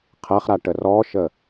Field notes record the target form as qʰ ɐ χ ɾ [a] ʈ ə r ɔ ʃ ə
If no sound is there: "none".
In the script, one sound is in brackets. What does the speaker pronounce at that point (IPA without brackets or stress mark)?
a